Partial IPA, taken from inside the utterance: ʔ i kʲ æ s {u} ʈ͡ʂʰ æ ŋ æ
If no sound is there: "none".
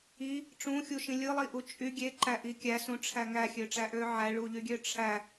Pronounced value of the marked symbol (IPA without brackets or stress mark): ũ